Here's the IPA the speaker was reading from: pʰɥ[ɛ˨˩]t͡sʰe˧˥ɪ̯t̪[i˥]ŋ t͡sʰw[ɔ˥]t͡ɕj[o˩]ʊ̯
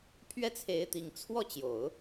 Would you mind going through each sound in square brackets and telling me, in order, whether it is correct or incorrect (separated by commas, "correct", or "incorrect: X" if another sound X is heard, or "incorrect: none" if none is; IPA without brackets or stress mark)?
incorrect: ɛ˥˩, incorrect: i˨˩, incorrect: ɔ˥˩, incorrect: o˨˩˦